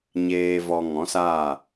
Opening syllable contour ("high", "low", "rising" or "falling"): low